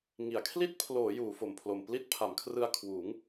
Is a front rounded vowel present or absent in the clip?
absent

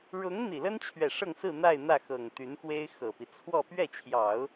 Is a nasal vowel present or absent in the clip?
absent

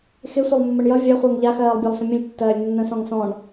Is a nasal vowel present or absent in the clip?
present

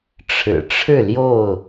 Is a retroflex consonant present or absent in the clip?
present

